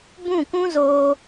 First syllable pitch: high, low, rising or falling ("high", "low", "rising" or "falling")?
falling